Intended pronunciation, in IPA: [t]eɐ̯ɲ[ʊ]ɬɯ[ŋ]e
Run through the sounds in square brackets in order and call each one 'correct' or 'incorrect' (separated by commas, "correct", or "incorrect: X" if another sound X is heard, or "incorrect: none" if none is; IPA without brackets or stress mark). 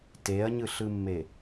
correct, incorrect: ɯ, incorrect: mː